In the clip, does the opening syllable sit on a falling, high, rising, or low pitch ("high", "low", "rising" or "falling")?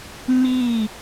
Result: falling